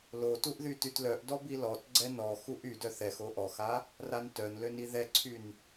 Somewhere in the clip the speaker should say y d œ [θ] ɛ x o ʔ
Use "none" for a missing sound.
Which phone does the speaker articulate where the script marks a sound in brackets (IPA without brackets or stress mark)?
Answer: θ